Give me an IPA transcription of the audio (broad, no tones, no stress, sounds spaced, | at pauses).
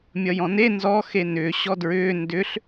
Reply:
mʲ ʌ j ɔ̃ n e n z ɔ x e n ʏ ɕ ɔ d ɹ ʏː n d ʏ ɬ